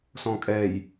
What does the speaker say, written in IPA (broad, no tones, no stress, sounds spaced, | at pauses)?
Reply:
s ɔ̃ kʼ ɛ j